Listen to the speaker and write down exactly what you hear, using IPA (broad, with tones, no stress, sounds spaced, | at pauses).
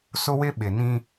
s ʊ˦ w ɪ˦ ɓ ɪ˨ n ĩ˦